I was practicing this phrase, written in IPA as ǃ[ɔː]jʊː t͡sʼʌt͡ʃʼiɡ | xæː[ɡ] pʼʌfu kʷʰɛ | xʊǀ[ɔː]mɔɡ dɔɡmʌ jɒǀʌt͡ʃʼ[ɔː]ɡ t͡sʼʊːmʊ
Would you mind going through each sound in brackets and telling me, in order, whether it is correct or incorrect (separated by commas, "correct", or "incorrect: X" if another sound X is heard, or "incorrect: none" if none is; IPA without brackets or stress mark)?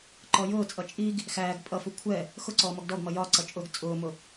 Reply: incorrect: ɔ, correct, correct, incorrect: ʊː